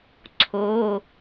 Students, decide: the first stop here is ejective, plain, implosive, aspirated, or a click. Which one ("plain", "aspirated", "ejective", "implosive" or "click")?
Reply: click